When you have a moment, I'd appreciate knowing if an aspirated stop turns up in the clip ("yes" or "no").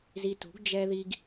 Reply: no